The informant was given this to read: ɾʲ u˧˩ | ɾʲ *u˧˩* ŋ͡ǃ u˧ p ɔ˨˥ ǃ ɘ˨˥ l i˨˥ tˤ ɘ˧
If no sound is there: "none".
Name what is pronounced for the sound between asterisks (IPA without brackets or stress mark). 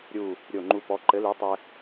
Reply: o˧˩